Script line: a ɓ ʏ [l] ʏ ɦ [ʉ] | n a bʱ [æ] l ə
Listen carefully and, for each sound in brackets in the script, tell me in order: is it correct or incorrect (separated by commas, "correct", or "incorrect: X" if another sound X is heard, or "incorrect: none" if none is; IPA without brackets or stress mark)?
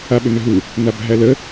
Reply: incorrect: n, incorrect: u, correct